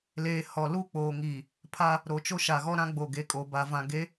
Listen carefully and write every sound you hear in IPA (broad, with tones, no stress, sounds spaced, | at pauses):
l eː˨ h ɔ˨ l uː˦ k͡p oː˨ ŋ iː˨ | pʰ a˦ | ɾ o˨ t͡ʃ o˦ ʃ a˨ ɣ ɔ˦ ɾ ã˦ ɡ͡b o˨ ɡ e˨ kʼ o˨ b a˨ v ã˨ ɡ e˨˦